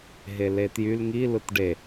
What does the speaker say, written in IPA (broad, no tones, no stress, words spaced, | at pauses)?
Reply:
ɦeletjyl ŋi lɯtɖe